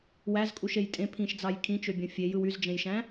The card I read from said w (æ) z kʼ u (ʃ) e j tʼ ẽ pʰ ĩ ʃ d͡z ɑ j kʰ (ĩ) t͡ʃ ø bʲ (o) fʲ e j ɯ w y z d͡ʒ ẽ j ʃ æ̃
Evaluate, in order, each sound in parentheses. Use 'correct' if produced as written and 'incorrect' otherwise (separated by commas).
correct, correct, correct, incorrect